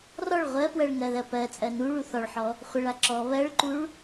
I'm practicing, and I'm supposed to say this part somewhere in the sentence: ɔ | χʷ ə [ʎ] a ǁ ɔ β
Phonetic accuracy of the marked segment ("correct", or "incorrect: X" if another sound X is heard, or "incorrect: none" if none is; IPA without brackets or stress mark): incorrect: ɭ